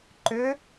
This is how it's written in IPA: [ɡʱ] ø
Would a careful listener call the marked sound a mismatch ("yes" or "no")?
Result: yes